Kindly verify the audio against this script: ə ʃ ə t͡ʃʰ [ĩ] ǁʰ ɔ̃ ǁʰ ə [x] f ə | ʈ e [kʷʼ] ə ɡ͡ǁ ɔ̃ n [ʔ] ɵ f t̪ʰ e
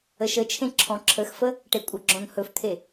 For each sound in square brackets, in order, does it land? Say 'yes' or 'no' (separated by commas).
no, yes, yes, no